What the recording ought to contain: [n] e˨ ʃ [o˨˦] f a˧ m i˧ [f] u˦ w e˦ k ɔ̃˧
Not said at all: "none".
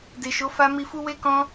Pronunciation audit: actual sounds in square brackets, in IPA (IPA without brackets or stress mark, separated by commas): d, o˨˦, f